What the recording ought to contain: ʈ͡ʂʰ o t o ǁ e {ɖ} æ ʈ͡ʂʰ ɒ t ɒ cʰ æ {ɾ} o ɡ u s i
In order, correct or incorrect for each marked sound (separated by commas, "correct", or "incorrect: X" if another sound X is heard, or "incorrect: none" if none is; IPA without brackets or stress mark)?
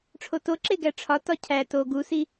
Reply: incorrect: ɡ, incorrect: t